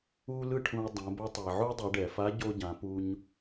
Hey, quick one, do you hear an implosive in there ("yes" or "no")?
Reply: no